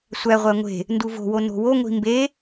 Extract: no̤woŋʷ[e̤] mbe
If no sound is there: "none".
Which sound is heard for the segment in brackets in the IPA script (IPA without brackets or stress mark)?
i̤